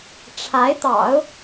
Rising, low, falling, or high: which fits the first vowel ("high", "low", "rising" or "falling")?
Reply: rising